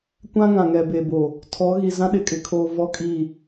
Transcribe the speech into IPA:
kʷ ã˦ ŋ ã˨ ŋ ɛ˨ b e˨ b o˨ | tʰ ɔ˨˦ ɣ i˨ z ã˦ ɗ ɪ˨ kʼ ɪ˨ kʰ oː˨ v ɔ˦ kʼ i˦˨

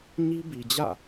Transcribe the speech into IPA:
ɲ i˦ b i˨ d͡ʑ ä̰˦˨

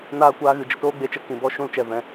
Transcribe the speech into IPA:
n aː˦ kʷ aː˧ ɣ ɨ˨ d͡ʒ ə˧ t oː˦ ɡ͡b e˧ t͡ʃ ə˧ k ĩ˨ b ɔ˧ ʃ ũ˧ l t͡ʃ ɛ˨ v ɛ̃˨

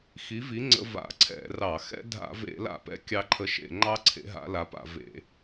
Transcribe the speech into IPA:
x i˨˦ v i˨˦ ŋ͡ǀ ə̰˦˥ v a̰˧˩˧ ǀʰ ɛ̰˧˩˧ r ɑ˧˩˧ x ɛ̰˦˥ dʱ a̰˧˩˧ v ḛ˧˩˧ l a̰˧˩˧ p ɛ̰˨˦ kʲ ɑ˦˥ ǃʰ ə˦˥ ʃ ḛ˧˩˧ ŋ͡ǃ ɑ˦˥ ǀʰ ḛ˨˦ ɦ a̰˨˦ l a˨˦ p a̰˧˩˧ v ḛ˧˩˧

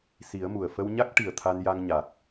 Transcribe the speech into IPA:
s i˨˩˦ ə̯ m u˨˩ ə̯ f ə˧ w ɲ a˦˥ k̚ ʈ i˨˩ ə̯ t̪ʰ a˧ n j a˧ ŋ ɲ a˨˩ k̚

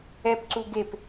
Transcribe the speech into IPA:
ɛ p ǀ u ɡ e p

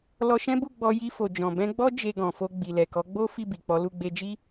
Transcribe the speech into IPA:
l ɔ˧ ʃ ɛ̃˦ b u˦˨ ɡ͡b ɔ˧ j i˧ f o˨ d͡ʒ ɔ̃˨ b ɛ̃˧ ɡ͡b ɔ˦ d͡ʒ e˧ ɡ ɔ̃˨ f o˧ ɡ͡b i˨ l ɛ˨ k ɔ˨˦ ɡ͡b o˦ f i˦˨ b i˨ k͡p ɔ˨˦ l u˦˨ ɡ͡b e˧ d͡ʒ i˦

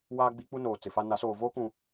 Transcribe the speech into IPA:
w aː˦ ɡ͡b i˦ k͡p u˦ n oː˨ t͡s ɪ˨ f a˦ n a˨˦ s oː˨ v oː˦ k ũ˨

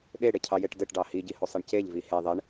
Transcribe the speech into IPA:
ɗ e ɽ e cʰ ɑ j e ʈ d ɘ ʈ ɖ ɑ h i ɟ i h o sˤ i ɳ c e ʎ v i h e ðˤ e ɳ

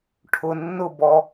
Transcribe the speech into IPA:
ʈʰ ʊ nː ʊ b ɔ

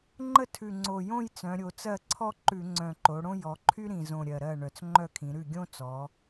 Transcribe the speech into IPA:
ŋ͡ǃ ə˥˧ tʰ ʉ˨˩ ŋ͡ǀ o˨˩ j õ˥˧ j t͡s œ̃˩˧ ɾʲ o˩˧ t͡s ɜ˥˩ ǀʰ ɔ˥ ǃ ʉ˧˩˧ ŋ͡ǀ œ̃˨˩ ǃ o˩˧ ɽ õ˥ j ɔ˩˧ ǃʰ y˥ ɾ ĩ˨˩ z õ˨˩ ɾʲ ɜ˨˩ ɾ ɜ˥˩ ɳ œ˨˩ t͡s ŋ͡ǃ œ˥˩ kʰ ĩ˩˧ ɾ ʉ˥˩ ɡʲ õ˥ t͡s ɔ˩˧

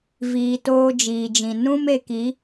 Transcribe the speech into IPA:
v iː˧ t oː˦ d͡ʒ iː˨ d͡ʒ ĩ˨ n ũ˦ m e˧ k i˨˦

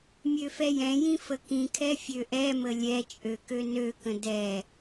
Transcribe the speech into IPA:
mʲ ø f ɛ j ɛ̃ j ĩ f ə k ĩ kʰ ɛ fʲ ø ʔ ɛ m ə lʲ ɛ t͡ʃʼ ø k ø n ø k ə̃ d ɛ

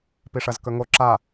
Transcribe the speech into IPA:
p i ʂ ɐ z k ɵ ŋ o ǁ a

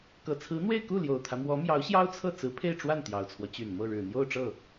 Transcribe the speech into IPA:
k ɤ˨˩ t͡sʰ ɹ̩˧˥ n̪ w e˥˧ ɪ̯ k u˥˩ l j o˨˩ ʊ̯ t̪ʰ ä˦ m w ɔ˧˥ m j ɑ˧˥ ʊ̯ ɕ j ɑ˥ ʊ̯ t͡sʰ ɤ˥˩ t͡s ɹ̩˧˥ pʰ e˥˧ ɪ̯ ʈ͡ʂ w a˥˩ n t̪ j ɑ˨˩ ʊ̯ t͡sʰ w ɔ˦ t͡ɕ y˨˩ n m ɤ˥˩ ɻ ɻ̩˨˩ n̪ j o˥˧ ʊ̯ ʈ͡ʂ ɤ˥˩

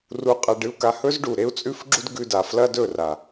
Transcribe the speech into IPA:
r u˧ qʼ a˧ ɖ ɨ˧ u̯ k a˧ h ɵ˦ z ɖ u˨ ɾ e˦ u̯ t͡sʼ ʉ˦ f ɡ͡ǁ u˦ d ɡ ʉ˧ d a˨ f l ɐ˦ d ɵ˦˨ r a˨

